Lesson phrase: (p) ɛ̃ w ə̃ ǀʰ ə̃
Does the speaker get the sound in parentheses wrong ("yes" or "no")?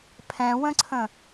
yes